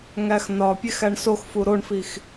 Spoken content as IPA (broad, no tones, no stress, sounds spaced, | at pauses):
ŋ æ x n ɒ pʲ e x æ ɳ s o x f u ɾ o ɳ f i x